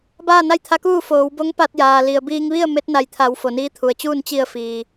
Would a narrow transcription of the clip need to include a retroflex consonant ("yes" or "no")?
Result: no